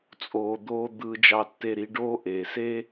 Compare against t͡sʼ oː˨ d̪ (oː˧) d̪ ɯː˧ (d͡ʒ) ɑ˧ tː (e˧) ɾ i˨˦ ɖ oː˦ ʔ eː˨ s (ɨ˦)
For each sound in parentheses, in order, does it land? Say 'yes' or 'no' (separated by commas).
yes, yes, yes, no